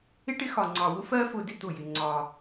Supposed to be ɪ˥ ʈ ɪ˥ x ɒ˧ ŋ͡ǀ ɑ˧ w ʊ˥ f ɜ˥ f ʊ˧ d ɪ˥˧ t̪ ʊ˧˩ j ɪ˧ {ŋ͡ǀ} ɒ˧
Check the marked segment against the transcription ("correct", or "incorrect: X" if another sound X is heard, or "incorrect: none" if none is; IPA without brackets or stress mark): correct